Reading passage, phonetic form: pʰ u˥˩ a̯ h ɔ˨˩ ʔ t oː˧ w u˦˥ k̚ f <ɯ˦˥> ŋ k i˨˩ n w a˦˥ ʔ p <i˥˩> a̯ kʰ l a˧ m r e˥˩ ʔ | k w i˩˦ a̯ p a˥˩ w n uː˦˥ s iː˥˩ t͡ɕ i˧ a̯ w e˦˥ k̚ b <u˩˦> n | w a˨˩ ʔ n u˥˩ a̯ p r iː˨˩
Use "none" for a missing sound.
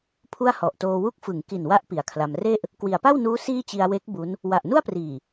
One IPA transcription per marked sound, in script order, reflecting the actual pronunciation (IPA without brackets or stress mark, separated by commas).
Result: ɯ˩˦, i˨˩, u˦˥